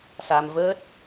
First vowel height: low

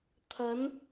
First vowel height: low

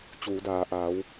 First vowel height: high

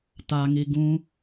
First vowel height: low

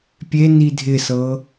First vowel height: mid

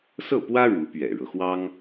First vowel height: mid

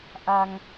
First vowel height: low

